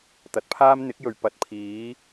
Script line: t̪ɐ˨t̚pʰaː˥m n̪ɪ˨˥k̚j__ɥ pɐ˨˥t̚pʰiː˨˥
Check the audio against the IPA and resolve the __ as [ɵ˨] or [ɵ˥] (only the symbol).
ɵ˨